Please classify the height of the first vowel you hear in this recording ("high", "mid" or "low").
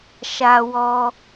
low